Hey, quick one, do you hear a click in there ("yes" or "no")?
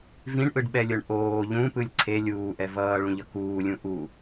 yes